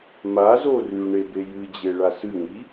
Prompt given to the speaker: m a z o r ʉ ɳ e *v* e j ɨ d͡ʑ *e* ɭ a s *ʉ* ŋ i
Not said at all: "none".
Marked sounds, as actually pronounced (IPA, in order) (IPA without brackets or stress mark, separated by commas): b, e, ɨ